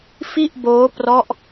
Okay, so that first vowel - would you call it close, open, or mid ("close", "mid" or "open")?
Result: close